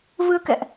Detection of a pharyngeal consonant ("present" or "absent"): absent